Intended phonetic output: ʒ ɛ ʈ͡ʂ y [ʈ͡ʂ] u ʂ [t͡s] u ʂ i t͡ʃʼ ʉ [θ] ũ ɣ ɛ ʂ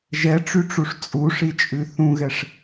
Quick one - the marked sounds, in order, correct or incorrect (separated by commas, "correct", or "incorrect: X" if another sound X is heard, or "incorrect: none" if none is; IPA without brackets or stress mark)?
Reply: correct, incorrect: t͡sʼ, correct